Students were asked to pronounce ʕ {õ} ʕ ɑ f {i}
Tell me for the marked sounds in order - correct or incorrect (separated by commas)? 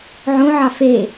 correct, incorrect